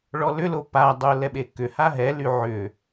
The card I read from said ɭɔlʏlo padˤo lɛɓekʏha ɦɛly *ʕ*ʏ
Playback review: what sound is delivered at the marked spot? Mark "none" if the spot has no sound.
ʕ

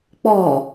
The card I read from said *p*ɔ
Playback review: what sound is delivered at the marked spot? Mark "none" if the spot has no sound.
k͡p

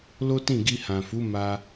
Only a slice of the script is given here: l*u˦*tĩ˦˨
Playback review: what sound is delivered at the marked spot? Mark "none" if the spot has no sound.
o˦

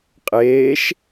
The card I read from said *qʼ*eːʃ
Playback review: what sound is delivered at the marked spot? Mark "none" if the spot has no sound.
qʼ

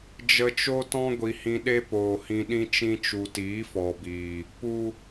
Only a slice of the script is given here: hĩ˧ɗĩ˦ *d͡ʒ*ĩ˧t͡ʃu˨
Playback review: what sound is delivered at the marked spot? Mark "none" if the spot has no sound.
t͡ʃ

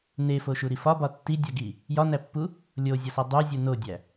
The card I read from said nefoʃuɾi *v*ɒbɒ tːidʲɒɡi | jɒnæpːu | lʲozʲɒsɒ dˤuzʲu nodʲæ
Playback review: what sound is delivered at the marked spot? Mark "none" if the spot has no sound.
f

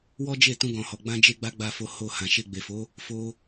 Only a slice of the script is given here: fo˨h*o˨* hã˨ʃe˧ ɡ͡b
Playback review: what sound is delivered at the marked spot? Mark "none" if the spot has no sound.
o˨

